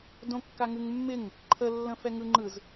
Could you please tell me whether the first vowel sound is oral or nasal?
nasal